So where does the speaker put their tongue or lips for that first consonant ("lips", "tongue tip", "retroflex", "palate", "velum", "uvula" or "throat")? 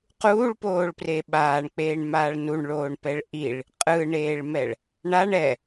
uvula